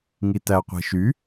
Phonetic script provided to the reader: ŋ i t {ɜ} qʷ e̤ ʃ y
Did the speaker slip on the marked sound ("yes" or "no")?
yes